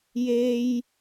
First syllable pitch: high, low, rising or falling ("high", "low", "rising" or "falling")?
high